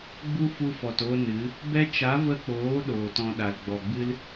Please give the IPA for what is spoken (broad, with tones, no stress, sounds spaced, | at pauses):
ɡ͡b u˦ f u˧ f ɔ˨ t o˧ n ɨ˨˦ | b ɛ˧ t͡ʃ a˨˦ v ə˧ k͡p oː˨˦ ɗ oː˨ t ɔ̃˧ ɗ a˨ l ɡ͡b ɔ˨ ɡ͡b ɨ˦ l